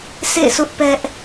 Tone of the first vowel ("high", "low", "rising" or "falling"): falling